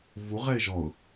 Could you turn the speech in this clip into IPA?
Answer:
v u ʁ ɛ ɪ̯ ʒ ɔ ʊ̯

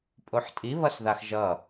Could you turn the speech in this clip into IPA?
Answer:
pʼ o ħ tʼ i β ʌ s ð a x ʒ ʌ

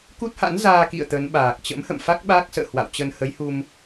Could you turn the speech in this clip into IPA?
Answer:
k u˦˥ t̚ h a̰˧˥ n z aː˧ k ḭ˧˨ ə̯ t̪ ə˨˦ n ɓ aː˨˩ k̚ t͡ɕ ə̰˧˥ m h ə̰˧˨ m f a˦˥ k̚ ɓ aː˦˥ k̚ s ə̰ː˧˨ h w a̰˧˨ w t͡ɕ ə˧ n h ə˨˦ j h u˧ m

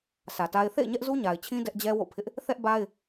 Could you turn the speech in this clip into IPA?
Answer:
sʰ ä˨ t a˦ ɪ̯ θ ḛ˦˨ ɪ̯ ɲ ɛ˦ ʔ z u˦ ɲ a˨ ɪ̯ t͡ɕʰ ĩ˦ d ɛ˦ ʔ d͡ʑ ɛ˦ w o̰˦˨ pʰ ɪ˦ ʔ | θ ɛ˦ ʔ b a˦ ɪ̯

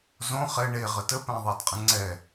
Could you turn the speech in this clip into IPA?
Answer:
z õ χ ɛ ɳ e ʁ ə t ə p æ̃ ðˤ æ d qʼ ə̃ ŋ͡ǀ ɛ

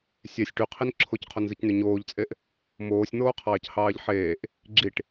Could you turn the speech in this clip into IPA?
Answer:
sʲ e sʲ ʈ y qʰ i n ǁʰ o c qʰ o n z ɯ c n y ɲ oː ʎ t͡sʼ e ʔ | m oː sʲ n̪ oː qʰ ɑː c h ɑː ʎ ħ eː ʔ | ɡ͡ǁ i ʈ

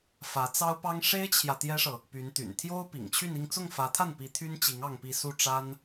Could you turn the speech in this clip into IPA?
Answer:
f ä˧˥ t͡s ɑ˥ ʊ̯ p ɑ˥ ŋ ʂ e˥ ɪ̯ t͡ɕʰ j ä˨ t̪ j ɛ˥ ʂ ɤ˨ | p y˧˥ n t̪ y̰˨˩ n t̪ʰ j o˥ ʊ̯ p ḭ˨˩ ŋ t͡ɕʰ y˥˧ n i˥˧ ŋ t͡s ʊ˥˩ ŋ f ä˧˥ t̪ʰ a˥˩ n p i˧˥ t̪ʰ y˥ n t͡ɕ i˧˥ ŋ ɑ˥˧ ŋ p i˥˧ s u˥˩ ʈ͡ʂ a˥ n

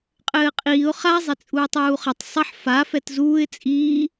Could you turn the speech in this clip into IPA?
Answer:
qʼ ɘː qʼ iː ʊ̯ χ a zˤ e t͡sʼ uː tˤ uː χ ɐ tˤ sˤ ɐ ħ f a f ɛ t z uː ɪ̯ t͡sʼ iː

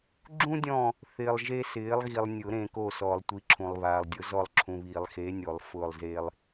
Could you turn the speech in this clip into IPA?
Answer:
ɡ͡ǁ ũ˥ dʲ ɔ̃˦˨ | θ ɪː˨ lˠ ʒ e˥ s ɪː˨˥ lˠ ɣ i˨ lˠ nʲ ʊ˨˩˦ ɾ ẽ˨ k o˦˨ s ɔ˨˩˦ lˠ tʷ i˨˥ ǁʰ ũ˨ lˠ β aː˨ lˠ dʲ ʊ˨˥ z ɔ˦˨ lˠ ǁʰ ũ˨ β i˨˩˦ lˠ x e˨˥ nʲ o˨˩˦ lˠ f ʊː˦˨ lˠ z e˥ lˠ

